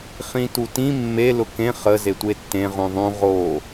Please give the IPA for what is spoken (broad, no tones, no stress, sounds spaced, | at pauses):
χ ĩ t u t ĩ mː e l ʊ k ẽ χ ə z e tʷ e tː ẽ ʁ ũ ðˤ ũ ʁ o